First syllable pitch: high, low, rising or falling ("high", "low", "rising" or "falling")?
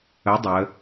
rising